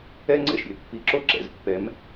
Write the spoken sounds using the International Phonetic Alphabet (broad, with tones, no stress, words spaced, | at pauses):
ɛ˦ ŋ͡ǀɛ̰˦ʃɾʲɛ̰˦ pːi˨ǁo˦ǁɛ̰˨zpːɛ˨˦m